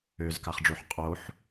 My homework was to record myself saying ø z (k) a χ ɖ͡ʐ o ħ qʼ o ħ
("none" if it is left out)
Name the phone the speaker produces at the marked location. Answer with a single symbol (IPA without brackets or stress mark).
k